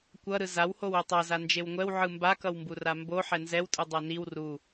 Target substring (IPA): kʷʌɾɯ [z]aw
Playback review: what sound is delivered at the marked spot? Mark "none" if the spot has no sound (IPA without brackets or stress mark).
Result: z